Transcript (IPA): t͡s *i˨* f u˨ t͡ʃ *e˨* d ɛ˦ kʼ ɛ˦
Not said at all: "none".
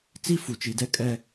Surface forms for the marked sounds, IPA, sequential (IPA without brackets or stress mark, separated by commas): i˦, i˨